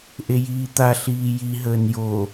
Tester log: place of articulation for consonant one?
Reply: glottal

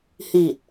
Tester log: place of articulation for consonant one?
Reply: glottal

